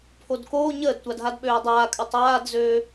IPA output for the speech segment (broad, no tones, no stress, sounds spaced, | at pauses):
pʰ o d k oː ɲ əː d tʷ a d ɦ a d ɓ øː dˤ aː kʼ ʉ tˤ aː d z øː